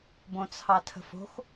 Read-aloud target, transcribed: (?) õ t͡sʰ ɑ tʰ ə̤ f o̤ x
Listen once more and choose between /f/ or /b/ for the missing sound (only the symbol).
b